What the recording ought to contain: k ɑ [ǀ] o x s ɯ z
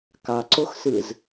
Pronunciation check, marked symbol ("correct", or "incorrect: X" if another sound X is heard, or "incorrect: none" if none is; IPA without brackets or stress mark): correct